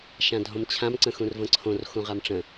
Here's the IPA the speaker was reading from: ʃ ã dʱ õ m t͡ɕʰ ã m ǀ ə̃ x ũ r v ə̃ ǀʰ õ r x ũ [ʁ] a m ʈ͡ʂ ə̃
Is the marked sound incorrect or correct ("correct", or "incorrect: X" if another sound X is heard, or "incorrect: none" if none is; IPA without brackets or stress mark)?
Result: correct